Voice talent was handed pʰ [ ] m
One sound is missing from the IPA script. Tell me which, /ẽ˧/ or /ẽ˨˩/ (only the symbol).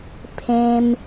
ẽ˧